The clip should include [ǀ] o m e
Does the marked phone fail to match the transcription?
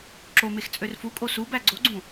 yes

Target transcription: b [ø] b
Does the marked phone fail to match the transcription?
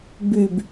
yes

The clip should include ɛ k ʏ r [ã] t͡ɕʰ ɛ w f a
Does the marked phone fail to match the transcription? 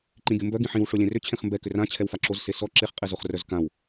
no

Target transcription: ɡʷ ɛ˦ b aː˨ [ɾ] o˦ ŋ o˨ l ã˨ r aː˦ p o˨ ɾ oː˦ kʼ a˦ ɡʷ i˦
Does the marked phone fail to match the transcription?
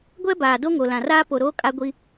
yes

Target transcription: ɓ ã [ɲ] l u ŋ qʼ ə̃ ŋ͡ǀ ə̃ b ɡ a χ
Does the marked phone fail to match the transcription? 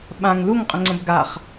yes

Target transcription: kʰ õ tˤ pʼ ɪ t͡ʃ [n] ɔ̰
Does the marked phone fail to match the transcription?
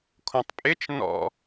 no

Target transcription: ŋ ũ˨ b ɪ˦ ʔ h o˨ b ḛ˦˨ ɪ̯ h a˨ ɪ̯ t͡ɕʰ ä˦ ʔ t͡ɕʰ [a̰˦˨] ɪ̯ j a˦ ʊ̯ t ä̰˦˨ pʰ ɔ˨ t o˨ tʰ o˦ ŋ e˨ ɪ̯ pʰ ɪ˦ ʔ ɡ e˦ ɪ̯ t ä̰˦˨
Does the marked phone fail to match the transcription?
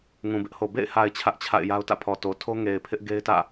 no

